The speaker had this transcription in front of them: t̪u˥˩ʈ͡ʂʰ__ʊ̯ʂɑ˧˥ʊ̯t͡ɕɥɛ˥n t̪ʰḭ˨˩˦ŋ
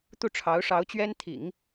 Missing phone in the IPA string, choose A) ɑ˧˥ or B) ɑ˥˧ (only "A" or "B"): A